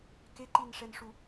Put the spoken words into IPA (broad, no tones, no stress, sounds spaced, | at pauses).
k e ǃ i n ʂ ɛ n ʂ u